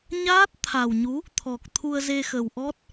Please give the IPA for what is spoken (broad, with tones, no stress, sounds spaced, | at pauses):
ɲ aː˦˥ t̚ t̪ʰ a˨˩ w ɲ u˨˦ | t̪ʰ ɔ˨˩ k̚ t̪ʰ u˧ ə̯ z e˧ x ə˨˩ w ʔ ɔ˦˥ t̚